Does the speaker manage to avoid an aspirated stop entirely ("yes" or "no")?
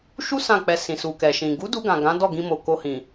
yes